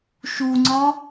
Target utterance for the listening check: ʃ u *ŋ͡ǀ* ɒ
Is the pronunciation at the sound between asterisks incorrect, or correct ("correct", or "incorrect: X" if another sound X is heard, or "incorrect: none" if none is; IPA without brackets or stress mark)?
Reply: correct